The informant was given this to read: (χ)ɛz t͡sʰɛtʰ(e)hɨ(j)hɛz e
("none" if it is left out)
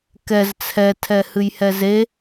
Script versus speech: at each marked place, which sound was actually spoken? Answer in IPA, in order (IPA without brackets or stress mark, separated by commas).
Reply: k, ɛ, j